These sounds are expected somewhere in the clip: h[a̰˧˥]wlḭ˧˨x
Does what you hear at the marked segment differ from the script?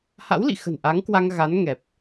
no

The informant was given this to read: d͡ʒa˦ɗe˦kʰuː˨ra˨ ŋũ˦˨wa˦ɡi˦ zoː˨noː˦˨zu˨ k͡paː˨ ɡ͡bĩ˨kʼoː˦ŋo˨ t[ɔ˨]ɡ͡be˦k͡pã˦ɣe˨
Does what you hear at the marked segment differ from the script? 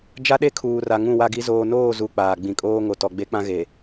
no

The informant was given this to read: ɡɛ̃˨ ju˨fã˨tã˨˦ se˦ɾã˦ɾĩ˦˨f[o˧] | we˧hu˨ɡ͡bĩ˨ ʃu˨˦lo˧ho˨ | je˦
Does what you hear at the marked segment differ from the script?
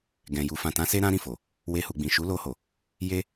yes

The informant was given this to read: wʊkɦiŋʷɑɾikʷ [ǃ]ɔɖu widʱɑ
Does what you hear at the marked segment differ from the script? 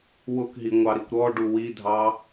yes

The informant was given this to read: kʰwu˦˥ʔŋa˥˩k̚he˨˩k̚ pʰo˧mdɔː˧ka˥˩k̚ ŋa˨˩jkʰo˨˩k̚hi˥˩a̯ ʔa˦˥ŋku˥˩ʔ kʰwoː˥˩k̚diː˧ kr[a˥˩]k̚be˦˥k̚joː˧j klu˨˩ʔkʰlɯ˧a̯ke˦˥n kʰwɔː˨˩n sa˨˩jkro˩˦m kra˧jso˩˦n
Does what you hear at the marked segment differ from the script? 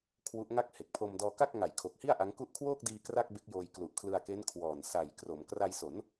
no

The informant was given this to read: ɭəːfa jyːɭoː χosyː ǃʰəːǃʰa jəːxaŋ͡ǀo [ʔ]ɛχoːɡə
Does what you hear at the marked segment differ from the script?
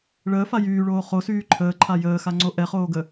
no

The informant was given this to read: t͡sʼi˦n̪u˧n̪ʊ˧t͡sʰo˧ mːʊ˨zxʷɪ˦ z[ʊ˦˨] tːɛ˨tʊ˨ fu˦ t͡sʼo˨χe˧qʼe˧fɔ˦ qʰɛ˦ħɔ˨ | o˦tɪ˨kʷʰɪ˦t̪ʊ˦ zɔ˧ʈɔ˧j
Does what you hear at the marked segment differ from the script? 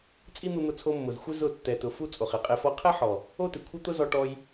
no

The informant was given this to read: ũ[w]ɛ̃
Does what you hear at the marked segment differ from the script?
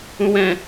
no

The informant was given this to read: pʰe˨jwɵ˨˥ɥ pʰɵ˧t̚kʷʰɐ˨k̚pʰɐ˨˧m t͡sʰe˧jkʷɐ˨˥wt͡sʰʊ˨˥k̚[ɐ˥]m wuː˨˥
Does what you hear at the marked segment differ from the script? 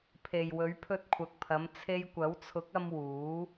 yes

